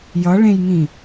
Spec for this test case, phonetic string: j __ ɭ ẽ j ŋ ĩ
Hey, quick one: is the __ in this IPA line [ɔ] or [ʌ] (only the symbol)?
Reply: ʌ